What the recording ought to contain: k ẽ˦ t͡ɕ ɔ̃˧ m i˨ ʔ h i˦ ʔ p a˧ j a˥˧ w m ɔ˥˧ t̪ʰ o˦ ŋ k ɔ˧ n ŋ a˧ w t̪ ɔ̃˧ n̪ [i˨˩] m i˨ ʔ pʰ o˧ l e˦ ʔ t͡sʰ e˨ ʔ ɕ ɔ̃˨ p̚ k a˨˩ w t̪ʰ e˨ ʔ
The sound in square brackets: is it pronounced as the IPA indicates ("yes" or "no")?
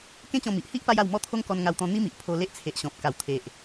no